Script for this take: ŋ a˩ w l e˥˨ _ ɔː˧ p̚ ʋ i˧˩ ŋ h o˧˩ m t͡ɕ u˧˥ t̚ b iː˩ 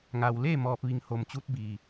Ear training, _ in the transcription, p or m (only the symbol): m